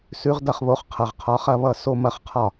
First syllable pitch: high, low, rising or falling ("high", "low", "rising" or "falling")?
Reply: rising